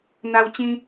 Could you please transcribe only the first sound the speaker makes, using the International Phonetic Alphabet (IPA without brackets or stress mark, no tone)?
n̪